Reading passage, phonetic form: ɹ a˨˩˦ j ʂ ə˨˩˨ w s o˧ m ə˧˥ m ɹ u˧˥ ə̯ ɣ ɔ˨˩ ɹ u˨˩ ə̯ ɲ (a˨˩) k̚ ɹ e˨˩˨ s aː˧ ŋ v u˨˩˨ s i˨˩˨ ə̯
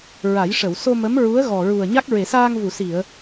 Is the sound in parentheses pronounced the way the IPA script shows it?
no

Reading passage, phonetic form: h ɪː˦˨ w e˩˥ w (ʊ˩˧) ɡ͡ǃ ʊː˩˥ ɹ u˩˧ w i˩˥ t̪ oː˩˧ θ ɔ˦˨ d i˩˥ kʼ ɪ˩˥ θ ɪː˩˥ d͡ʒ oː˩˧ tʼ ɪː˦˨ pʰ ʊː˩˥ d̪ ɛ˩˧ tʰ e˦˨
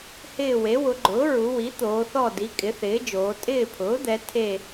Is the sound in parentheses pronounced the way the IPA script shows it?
yes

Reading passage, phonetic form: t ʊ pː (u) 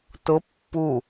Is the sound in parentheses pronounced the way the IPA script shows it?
yes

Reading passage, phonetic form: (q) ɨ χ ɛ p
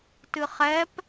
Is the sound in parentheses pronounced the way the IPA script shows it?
no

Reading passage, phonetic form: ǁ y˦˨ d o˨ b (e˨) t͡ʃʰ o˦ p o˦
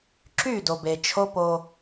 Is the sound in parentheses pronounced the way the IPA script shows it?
yes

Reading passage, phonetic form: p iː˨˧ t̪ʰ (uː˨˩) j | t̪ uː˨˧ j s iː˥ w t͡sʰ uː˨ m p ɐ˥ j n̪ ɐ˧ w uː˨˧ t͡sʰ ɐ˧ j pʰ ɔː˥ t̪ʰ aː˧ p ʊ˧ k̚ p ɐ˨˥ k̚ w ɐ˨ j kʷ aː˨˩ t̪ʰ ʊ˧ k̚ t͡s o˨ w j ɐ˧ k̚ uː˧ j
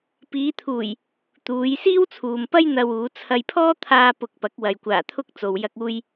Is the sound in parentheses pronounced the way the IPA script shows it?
yes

